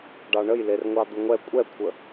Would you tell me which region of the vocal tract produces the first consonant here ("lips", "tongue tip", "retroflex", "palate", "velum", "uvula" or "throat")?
retroflex